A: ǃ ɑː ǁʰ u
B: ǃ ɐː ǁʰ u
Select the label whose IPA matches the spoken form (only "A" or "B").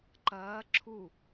B